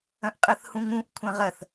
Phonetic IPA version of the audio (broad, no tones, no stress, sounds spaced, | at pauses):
ɐ̃ ʔ qʼ ɐ θ h ũ ŋ ũ ʔ kʷʰ ɐ̃ ʁ ɐ θ